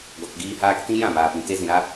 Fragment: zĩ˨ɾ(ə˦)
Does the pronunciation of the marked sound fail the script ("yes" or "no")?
yes